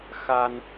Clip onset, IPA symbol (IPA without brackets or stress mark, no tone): x